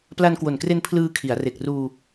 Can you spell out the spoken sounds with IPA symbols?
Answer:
p l a˧ n k w o˨˩ n k r e˧ n pʰ l ɯː˧ kʰ i˩˦ a̯ r e˨˩ k̚ r uː˧

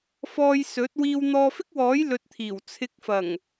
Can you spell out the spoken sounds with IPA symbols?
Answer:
f ɔː˧ j s ɵ˨˥ t̚ w iː˧ w n̪ ɔː˧ f ɪ˥ k̚ w ɔː˨˥ j l ɵ˨ t̚ t̪ʰ iː˨˩ w t͡sʰ ɪ˨˥ k̚ f ɐ˨˩ ŋ

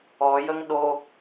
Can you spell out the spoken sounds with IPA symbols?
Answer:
ɔ j ə ŋ ɗ o

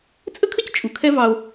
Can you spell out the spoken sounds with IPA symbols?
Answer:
t͡sʼ ə˦ kʰ ə˦ c t͡ʃʼ u˨ kʰ ɛ˦ v ɑ˦ o̯

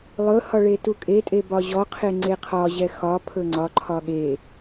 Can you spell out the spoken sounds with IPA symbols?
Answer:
lˠ ɵ h ɒ ɭ e t u kʼ e tʼ e b ɒ ʑ ɔ qʰ e ŋ͡ǀ e qʰ ɒ ʑ ɛ x ɒ pʰ ɵ ŋ͡ǀ ɒ ǃʰ ɒ ɠ e

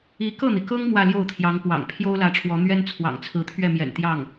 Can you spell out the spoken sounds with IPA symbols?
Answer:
i˧˥ k ɤ˥˩ n̪ i˩ k ɤ˥ ŋ m w ä˥˧ l j o˥˩ ʊ̯ t̪ʰ j ɑ˧˥ ŋ p w ɑ̰˨˩ ŋ pʰ j o˥ ʊ̯ l ä˧˥ ʈ͡ʂʰ w ɔ˧˥ n̪ ɥ ɛ˥ n t͡sʰ w ɑ̰˨˩ ŋ t͡sʰ ɹ̩˧˥ t̪ʰ ɥ ɛ˥˩ m j ɛ̰˨˩ n t̪ j ɑ˥˩ ŋ

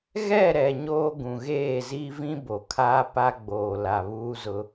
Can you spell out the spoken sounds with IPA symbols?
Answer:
ɣ ɛ˦˨ ɾ ɛ˨ ɲ oː˦ ɡ ũ˨ ɣ eː˦˨ z i˦ v ĩ˦ b o˨ kʰ aː˦ p a˦ ɡ͡b oː˨ l a˨ β uː˦ z ʊ˦

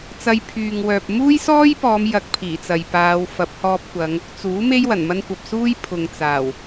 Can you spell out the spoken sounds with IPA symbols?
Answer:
t͡s ɐ˧ j pʰ yː˨ ŋ w œː˨ p̚ m uː˥ j s ɔː˥ j p ɔː˨˧ m j ɐ˧ k̚ pʰ iː˨˩ t͡s ɐ˨ j p aː˨˧ w f ɐ˨˥ p̚ h ɔː˧ p̚ kʷ ɐ˨˧ ŋ | t͡s uː˨˥ m e˥ j w ɐ˨˩ n m ɐ˥ n kʷ ɐ˨ p̚ s uː˥ j pʰ ʊ˨ ŋ t͡s aː˨˩ w

